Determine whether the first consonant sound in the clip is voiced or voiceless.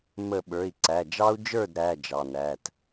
voiced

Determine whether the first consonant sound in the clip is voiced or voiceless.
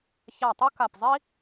voiceless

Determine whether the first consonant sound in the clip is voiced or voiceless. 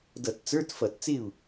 voiced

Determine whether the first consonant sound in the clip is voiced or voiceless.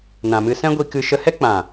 voiced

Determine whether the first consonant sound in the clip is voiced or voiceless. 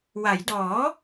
voiced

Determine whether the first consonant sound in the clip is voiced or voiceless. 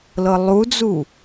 voiced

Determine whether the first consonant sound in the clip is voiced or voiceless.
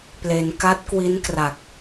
voiceless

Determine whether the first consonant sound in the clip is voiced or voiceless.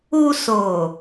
voiceless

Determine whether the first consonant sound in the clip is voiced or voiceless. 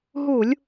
voiced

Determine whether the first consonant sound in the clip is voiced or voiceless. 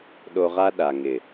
voiced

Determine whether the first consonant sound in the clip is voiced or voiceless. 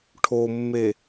voiceless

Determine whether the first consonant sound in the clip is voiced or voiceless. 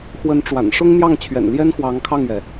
voiceless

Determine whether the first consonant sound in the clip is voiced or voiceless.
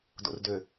voiced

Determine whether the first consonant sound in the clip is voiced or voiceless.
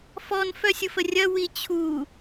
voiceless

